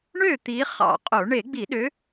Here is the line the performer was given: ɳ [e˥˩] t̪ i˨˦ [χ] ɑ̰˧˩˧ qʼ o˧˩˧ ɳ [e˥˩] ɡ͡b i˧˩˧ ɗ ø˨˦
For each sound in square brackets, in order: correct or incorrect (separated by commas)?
incorrect, correct, incorrect